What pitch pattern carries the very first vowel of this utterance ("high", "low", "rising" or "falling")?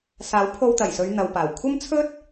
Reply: rising